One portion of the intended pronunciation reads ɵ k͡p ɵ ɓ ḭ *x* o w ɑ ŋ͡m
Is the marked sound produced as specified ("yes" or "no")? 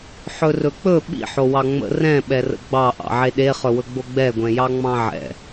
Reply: no